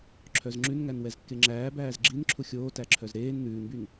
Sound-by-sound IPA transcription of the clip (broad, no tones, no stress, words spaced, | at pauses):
ǁʰœzŋ͡ǁʉnŋæn wɛzkːeŋ͡ǁæːbæːz ɡ͡ǁinǁʰu xʲoːtæǁʰœz ɾeːn n̪ʉːnbyn